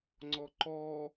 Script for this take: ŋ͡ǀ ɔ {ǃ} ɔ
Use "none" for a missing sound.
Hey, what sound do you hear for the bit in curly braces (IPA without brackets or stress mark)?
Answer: ǃ